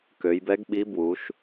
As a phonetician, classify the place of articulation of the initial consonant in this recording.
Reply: velar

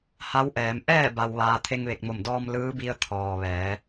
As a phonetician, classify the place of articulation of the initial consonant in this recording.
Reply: glottal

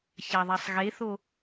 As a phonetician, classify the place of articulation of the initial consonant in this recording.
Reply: palatal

